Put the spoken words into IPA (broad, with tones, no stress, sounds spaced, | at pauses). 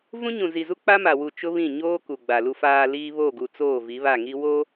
v ũ˦ ɲ ũ˨ z i˨ z u˦ k͡p a˦ m a˨ w u˨ t͡ʃ ʊ˦ β ĩ˦˨ ɲ oː˦ k u˨ ɡ͡b a˨ l u˨ f aː˨ l iː˦ β o˦˨ ɡ u˨ t͡s oː˦˨ v i˨˦ β a˦˨ ŋ i˦ w o˦